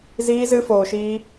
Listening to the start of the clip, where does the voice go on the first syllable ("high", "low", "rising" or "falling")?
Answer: high